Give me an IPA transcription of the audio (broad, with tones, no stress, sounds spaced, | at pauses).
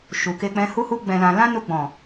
ʃ u˨ k e˧ k͡p ɛ̃˧ h u˦ h u˦ ɡ͡b ɛ̃˧ l ã˧ l ã˦ n u˧ ɡ͡b ɔ̃˨